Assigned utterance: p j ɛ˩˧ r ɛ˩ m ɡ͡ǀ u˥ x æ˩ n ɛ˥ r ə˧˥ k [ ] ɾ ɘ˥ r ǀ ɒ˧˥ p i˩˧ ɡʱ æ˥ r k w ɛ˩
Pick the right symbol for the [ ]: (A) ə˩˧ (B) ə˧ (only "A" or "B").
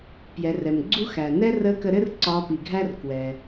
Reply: B